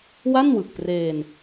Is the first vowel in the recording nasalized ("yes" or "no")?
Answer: no